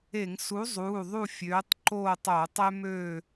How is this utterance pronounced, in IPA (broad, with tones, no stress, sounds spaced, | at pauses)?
e˧˩˧ ŋ s u˨˥ zˤ uː˩˧˩ ðˤ u˦˨ fʲ øː˨˥ tˤ ǃ oː˦˨ tˤ oː˧˩˧ tˤ ø˦ m øː˦˨